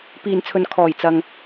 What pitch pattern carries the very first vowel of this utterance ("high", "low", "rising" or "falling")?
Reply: low